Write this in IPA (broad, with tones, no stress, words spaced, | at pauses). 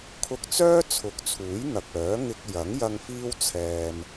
kʰʊ˧k̚t͡sœː˥ t͡sʰʊ˨˥k̚t͡sʰuː˨˥j n̪ɐ˨k̚œː˨˥ ŋɪ˧k̚ jɐ˨˥ŋjɐ˧ŋ fiː˥wt͡sʰɛː˧m